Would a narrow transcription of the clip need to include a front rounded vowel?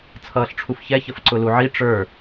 no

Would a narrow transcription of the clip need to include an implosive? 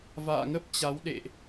yes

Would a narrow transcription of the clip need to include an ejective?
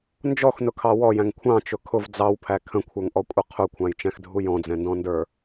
yes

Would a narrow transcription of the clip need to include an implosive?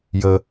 no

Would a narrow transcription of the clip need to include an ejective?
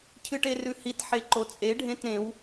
yes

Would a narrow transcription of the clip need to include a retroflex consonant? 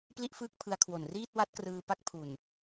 no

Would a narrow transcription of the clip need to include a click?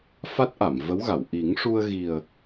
no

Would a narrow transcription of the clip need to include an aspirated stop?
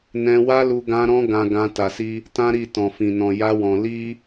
no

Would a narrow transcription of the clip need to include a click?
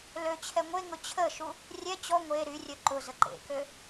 yes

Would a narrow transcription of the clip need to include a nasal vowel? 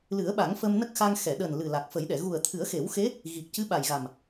no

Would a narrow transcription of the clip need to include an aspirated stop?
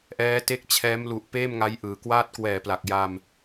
yes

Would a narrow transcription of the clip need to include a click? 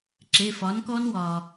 yes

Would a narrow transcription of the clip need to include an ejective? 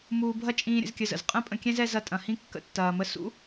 yes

